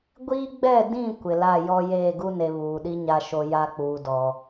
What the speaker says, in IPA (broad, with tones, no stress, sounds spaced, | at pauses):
ɡʷ iː˦ ɡ͡b ɛ˦˨ d ĩ˦˨ kʷ ɪ˨ l a˦˨ j ɔ˦ j eː˦˨ ɡ u˦ n e˨ β uː˨ ɗ i˦ ɲ a˨ ʃ o˨ j a˦ k͡p uː˨ d ɔ˨